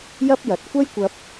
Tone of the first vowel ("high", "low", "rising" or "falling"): high